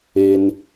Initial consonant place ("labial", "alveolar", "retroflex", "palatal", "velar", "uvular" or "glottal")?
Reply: alveolar